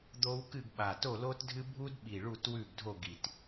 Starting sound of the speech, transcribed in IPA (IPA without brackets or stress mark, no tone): d̪